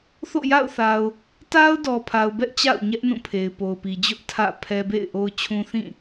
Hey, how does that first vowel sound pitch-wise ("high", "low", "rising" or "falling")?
falling